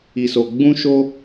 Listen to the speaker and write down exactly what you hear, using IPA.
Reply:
i˨ s o˨ ɡ͡b ũ˧ ʃ o˧

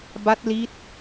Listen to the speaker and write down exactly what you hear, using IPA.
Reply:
b a˦˥ t̚ l i˦˥ t̚

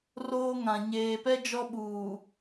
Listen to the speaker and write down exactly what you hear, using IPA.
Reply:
r oː˦ ŋ ã˨ ɲ eː˨ p ɛ˦ d͡ʒ ɔ˦ ɓ uː˨

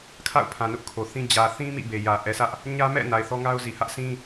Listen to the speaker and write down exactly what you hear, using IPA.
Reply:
kʰ a̰˦˨ ʊ̯ pʰ ã˨ n ʊ˦ ʔ kʰ o˨ θ ĩ˦ d͡ʑ ä˨ θ ĩ˦ m ḭ˦˨ b e˨ j ä˨ ʔ ɛ˨ sʰ ä˦ ʔ | ɲ ä˦ m ɛ̰˦˨ n a˨ ɪ̯ θ ɔ˦ ŋ a˦ ʊ̯ z i˨ h ä˦ ʔ sʰ ĩ˦

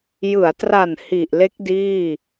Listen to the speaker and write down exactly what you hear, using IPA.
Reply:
j ɯ˩˦ a̯ t r a˨˩ n h i˨˩ ʔ l e˦˥ k̚ d iː˥˩

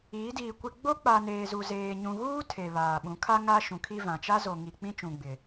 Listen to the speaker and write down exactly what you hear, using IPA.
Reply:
iː˨˦ d iː˨ kʷ ɪ˨ ɡ͡b o˦ k͡p a˨ n eː˨ z u˨ z eː˨ ɲ ũ˨ ɣ uː˦ tʰ e˨ β aː˨ ɓ ũ˨˦ kʰ a˦ ŋ aː˦ ʃ ũ˨ kʰ i˦ v ã˨ t͡ʃ a˦ z o˨ ŋ i˨ k͡p ĩ˦ t͡ʃ ũ˨ ɡ͡b ɪ˨

